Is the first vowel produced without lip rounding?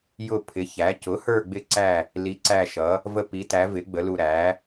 no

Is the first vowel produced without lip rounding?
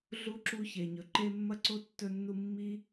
no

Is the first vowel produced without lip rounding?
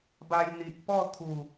yes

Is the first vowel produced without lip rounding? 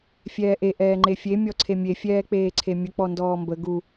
yes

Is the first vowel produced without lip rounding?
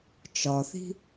no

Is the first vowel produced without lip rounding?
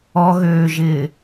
no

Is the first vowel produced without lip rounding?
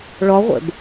no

